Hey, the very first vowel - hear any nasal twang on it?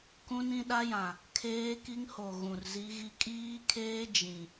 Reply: yes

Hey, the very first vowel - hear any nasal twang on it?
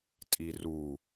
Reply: no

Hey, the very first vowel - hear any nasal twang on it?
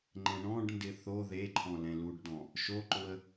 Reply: yes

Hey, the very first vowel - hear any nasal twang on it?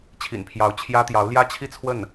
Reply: no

